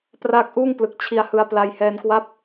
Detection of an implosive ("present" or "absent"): absent